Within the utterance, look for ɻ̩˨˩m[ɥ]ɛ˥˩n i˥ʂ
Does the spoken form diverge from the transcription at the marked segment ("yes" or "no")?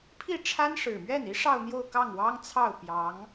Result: no